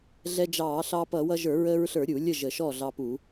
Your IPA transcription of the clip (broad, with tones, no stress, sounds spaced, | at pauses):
ɮ ɛ˧ d͡ʒ ɑː˧˩˧ ɬ ɑ˧ p ʌ˧˩˧ w ʌ˧ ʒ ə˞˧˩˧ ɹ əː˧ ɹ ɬ ə˞˧˩˧ ɾʲ u˧˩˧ lʲ ə˥˩ ʒ ə˧˩˧ ʃ ɔ˥˩ ɮ ɑ˧ p u˧˩˧